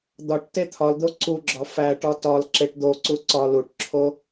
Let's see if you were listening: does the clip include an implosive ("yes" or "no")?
no